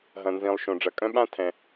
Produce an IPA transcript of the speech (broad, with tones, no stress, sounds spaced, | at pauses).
ɦ ɐ̃˩ n z ĩ˩ lˠ ʃ õ˩ ɖ͡ʐ ɐ˩ kʼ œ̃˥ ɓ ã˥ tʰ ɛ̃˩